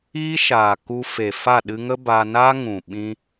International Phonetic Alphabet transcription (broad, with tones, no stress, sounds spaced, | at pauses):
iː˦ ʃ aː˨ k u˧ f e˨ f a˦˨ ɗ ɨ˧ ŋ ə˦ b a˧ n a˦ ŋ ũ˨ ɓ ĩ˧